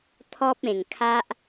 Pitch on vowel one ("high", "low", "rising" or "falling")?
high